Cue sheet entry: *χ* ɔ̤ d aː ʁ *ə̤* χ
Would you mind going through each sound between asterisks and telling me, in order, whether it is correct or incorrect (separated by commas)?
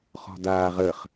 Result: correct, incorrect